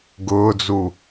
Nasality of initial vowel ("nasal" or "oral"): oral